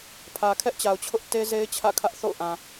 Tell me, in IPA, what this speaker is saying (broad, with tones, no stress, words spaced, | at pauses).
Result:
pʰä˨kʰɛ˦ʔt͡ɕa˨ʊ̯t͡ɕʰʊ˦ʔ te˦ze˦ɪ̯ t͡ɕʰä̰˦˨kʰä˦ʔ θo̰˦˨ʊ̯ ʔã˨